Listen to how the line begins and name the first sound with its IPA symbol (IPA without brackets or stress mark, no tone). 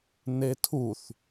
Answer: n